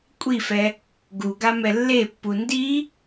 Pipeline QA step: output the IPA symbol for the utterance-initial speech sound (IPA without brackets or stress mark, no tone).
kʷʼ